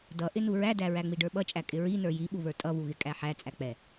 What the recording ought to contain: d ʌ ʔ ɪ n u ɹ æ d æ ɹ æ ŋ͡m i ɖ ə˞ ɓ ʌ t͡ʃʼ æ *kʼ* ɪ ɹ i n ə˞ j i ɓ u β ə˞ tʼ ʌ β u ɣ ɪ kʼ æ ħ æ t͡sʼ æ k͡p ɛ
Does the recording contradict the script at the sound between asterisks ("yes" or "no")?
no